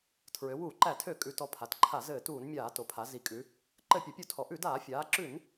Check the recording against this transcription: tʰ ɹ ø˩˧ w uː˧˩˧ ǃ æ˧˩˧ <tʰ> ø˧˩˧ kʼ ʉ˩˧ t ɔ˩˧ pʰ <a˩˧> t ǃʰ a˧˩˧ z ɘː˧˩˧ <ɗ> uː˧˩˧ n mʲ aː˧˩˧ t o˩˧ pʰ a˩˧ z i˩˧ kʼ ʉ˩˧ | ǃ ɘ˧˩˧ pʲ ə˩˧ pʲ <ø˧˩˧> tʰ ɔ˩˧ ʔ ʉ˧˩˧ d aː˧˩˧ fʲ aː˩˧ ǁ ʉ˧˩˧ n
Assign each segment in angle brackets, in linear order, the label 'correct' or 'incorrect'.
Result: correct, correct, incorrect, incorrect

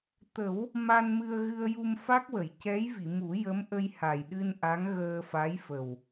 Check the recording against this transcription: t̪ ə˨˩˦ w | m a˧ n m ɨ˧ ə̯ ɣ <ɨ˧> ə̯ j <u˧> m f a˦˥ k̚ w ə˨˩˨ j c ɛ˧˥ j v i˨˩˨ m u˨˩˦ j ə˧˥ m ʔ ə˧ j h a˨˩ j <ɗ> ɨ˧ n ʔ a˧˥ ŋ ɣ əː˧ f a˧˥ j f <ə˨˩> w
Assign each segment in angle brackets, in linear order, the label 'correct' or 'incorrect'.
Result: correct, correct, correct, correct

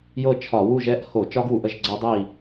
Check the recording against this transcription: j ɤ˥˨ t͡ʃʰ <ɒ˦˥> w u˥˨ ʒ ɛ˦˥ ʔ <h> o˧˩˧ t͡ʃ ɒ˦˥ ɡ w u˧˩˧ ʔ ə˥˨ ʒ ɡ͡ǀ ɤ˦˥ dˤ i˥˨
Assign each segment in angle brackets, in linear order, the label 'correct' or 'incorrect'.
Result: incorrect, correct

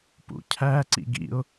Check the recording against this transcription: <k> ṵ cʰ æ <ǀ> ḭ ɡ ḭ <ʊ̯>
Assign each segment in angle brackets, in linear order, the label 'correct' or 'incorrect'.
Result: incorrect, correct, correct

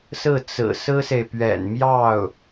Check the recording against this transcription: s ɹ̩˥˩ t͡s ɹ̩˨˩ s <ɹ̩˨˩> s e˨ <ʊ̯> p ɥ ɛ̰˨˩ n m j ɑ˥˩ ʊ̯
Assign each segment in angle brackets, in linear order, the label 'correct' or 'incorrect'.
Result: incorrect, incorrect

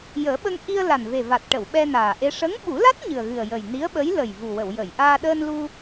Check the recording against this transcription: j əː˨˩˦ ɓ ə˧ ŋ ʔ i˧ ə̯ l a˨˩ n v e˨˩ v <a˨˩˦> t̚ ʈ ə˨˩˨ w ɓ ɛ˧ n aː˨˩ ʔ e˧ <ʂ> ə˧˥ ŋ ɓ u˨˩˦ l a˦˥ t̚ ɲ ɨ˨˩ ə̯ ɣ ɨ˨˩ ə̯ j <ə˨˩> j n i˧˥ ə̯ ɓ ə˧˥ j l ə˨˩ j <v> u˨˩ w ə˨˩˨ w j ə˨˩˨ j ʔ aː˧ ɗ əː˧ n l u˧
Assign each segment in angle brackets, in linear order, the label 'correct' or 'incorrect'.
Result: incorrect, correct, correct, correct

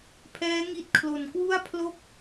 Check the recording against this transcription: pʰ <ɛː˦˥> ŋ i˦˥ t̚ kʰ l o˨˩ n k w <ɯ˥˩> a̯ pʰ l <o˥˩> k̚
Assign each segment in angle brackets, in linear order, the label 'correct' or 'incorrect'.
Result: correct, incorrect, correct

